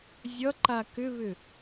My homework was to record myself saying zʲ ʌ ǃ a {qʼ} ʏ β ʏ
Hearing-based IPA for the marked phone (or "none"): k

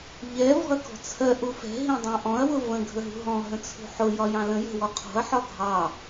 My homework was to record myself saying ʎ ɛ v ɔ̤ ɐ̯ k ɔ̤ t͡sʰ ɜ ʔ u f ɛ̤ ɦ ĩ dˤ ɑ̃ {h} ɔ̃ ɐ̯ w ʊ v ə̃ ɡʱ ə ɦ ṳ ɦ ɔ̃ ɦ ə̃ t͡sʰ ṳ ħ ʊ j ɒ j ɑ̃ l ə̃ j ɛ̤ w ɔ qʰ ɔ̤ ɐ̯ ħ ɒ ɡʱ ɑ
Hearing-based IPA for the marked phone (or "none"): ʔ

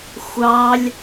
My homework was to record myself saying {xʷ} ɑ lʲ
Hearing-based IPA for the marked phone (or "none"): xʷ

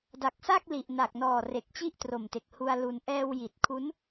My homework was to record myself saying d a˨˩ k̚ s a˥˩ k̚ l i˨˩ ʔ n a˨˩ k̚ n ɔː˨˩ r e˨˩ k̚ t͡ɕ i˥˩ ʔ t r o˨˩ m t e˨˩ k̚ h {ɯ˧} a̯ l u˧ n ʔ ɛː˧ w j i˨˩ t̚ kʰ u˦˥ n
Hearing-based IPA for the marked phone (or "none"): u˧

